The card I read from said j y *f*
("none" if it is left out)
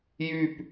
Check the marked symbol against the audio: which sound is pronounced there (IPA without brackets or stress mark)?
p